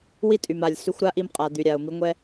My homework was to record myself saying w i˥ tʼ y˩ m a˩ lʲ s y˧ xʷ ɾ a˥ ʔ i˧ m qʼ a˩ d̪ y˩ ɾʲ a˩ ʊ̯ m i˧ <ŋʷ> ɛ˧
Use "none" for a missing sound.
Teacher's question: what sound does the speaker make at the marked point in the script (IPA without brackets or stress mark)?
ŋʷ